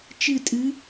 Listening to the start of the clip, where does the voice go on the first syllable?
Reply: falling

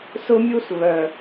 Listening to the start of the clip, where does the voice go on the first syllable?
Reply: high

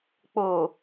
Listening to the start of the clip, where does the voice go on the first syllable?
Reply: low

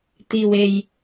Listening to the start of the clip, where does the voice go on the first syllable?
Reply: low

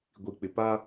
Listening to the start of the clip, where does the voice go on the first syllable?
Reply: low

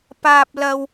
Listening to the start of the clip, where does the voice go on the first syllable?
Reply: low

